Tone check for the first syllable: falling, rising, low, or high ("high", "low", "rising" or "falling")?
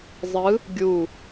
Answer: rising